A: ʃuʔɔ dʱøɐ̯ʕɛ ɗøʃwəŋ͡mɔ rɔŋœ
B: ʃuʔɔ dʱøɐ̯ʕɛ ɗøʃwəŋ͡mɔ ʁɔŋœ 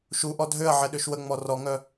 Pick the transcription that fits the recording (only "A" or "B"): A